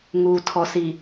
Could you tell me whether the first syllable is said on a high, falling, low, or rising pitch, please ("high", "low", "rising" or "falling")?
low